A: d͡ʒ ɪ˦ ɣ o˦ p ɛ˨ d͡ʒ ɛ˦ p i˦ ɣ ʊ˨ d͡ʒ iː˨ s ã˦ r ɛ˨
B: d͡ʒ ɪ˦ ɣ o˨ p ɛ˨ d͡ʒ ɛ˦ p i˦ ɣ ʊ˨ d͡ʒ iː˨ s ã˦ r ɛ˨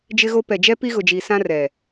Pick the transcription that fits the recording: A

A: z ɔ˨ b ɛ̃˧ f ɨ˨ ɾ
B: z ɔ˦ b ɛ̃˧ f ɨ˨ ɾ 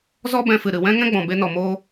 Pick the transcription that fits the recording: B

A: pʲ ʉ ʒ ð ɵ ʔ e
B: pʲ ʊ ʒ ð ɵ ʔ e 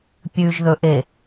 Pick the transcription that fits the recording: A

